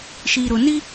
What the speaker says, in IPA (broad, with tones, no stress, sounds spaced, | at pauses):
ʃ i˨ ɾ ʊ˨ n i˦